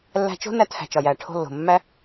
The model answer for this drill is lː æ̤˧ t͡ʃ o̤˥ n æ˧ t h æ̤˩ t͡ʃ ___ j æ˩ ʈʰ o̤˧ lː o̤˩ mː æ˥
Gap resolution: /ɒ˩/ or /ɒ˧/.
ɒ˩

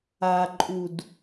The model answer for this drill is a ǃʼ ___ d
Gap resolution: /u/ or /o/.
u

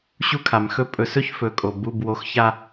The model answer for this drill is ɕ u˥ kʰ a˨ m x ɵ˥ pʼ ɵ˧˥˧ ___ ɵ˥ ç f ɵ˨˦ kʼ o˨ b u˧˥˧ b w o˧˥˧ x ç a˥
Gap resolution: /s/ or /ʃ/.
s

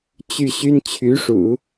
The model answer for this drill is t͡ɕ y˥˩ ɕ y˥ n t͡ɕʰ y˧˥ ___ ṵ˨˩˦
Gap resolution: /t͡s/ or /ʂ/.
ʂ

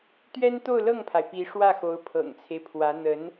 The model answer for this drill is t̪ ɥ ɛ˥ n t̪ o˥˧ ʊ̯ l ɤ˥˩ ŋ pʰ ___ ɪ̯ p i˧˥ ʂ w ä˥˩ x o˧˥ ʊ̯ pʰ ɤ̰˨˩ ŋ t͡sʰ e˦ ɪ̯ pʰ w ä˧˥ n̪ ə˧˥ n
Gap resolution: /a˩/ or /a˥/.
a˩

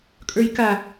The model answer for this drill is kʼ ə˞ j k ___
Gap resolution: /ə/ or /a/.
a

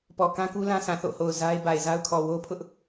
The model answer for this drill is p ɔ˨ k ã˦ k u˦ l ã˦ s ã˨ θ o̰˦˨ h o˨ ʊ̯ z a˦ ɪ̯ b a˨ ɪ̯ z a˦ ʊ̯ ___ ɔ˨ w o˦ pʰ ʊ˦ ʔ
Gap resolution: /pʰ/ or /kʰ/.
kʰ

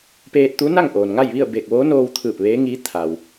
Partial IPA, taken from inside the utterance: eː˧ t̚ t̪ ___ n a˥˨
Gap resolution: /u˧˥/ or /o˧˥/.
u˧˥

